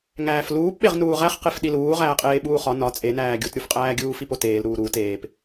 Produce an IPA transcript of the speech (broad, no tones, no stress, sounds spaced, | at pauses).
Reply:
ŋ æː f l uː p ɓ e ʁ n uː ʁ æ χ q e f ɗ i l uː ʁ æː qʼ eː ɓ uː χ ɒ n ɒ t͡sʼ e n æː ɡʲ u t ɾʲ u f qʼ æː ɡʲ uː f i p o t eː l ɾ uː ɾ uː t eː p